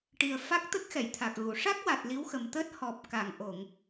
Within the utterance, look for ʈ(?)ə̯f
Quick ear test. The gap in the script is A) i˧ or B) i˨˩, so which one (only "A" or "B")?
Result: B